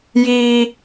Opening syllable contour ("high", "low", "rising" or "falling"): high